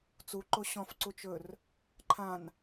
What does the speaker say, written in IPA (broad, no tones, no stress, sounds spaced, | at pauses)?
t͡s u ǃ o ɕ ɔ̃ f ǀ u t͡ʃ ɵ r | ǃʰ ã n